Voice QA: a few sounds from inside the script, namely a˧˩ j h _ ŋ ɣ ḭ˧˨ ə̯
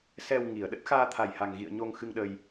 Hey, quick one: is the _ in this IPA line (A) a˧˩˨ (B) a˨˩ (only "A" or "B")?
B